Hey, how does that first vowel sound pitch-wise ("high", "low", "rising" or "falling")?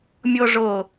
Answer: high